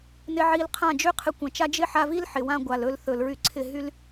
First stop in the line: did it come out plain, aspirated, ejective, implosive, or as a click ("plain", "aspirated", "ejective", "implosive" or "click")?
aspirated